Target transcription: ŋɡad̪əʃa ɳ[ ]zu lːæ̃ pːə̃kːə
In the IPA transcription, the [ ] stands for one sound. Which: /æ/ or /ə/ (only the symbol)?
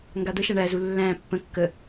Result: æ